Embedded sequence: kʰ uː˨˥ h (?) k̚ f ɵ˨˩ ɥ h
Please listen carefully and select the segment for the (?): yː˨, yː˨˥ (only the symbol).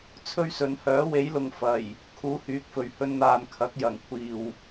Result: yː˨˥